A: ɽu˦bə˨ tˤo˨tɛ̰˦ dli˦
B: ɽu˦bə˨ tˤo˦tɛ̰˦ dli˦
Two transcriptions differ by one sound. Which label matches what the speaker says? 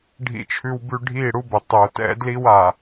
A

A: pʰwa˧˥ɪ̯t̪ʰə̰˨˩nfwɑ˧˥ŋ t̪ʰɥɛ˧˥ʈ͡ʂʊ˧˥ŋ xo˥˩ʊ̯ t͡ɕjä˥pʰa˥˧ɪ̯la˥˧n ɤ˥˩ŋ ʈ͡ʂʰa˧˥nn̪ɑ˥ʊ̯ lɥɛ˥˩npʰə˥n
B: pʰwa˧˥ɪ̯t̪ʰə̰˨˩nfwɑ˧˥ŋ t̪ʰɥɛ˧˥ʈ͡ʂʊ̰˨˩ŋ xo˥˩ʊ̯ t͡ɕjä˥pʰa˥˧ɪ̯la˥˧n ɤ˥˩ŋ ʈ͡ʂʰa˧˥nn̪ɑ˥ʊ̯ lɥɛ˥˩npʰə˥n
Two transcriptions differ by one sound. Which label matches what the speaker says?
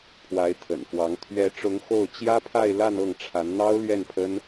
A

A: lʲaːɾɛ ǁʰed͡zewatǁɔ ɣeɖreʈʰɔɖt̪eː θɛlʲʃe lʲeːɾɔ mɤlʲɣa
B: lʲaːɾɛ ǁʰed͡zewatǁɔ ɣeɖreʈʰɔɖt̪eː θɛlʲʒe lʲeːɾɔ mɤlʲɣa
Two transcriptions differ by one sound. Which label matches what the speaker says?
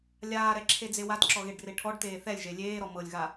B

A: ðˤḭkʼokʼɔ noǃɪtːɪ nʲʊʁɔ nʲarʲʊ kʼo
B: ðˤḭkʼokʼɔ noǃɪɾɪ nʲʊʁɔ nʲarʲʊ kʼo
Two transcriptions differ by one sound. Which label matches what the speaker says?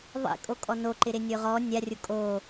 B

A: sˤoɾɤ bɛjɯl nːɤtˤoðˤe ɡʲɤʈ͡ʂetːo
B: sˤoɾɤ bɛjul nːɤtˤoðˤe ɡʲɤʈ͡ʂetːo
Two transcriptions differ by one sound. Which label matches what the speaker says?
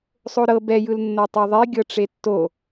A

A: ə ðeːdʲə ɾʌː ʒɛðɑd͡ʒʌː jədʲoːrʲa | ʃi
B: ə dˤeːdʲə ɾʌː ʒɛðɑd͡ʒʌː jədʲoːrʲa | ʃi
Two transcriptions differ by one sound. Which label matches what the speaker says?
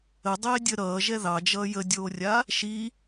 B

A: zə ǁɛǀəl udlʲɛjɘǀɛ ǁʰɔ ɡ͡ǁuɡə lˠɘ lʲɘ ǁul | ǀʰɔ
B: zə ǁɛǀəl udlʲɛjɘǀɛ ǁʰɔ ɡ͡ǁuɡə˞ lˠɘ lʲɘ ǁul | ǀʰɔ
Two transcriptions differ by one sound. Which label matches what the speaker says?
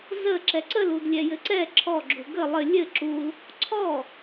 A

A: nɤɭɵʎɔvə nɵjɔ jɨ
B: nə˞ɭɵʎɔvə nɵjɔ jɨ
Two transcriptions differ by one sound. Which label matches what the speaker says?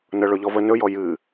A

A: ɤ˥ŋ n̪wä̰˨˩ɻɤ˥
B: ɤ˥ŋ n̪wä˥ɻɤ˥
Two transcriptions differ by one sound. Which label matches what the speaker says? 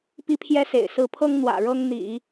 A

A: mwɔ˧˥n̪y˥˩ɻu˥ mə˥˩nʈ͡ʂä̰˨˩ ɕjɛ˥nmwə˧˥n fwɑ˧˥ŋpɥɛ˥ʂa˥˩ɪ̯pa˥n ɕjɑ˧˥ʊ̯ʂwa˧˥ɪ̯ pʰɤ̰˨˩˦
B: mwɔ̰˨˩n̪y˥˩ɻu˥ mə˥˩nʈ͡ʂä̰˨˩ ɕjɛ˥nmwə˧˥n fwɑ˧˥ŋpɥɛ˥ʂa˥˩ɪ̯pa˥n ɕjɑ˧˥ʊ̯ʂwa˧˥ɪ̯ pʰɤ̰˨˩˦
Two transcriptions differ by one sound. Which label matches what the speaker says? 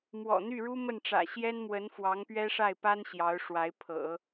B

